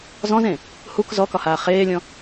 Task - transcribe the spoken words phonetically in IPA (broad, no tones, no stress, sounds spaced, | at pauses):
z ɔ̃ z ẽ | h u k z ɔ k ɒ h aː χ eː lʲ ɔ̃